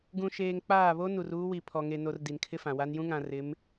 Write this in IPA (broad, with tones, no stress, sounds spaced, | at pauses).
ɡ ũ˨ ʃ eː˨ ŋ k͡p aː˦˨ β o˦ n u˨ r uː˦ w i˨ pʰ ɔ˨ ŋ e˨ n o˨ r d i˨ n kʰ ɪ˦ f ã˨ w a˦ n j ũ˦ ŋ ã˨ r ɪ˨˦ m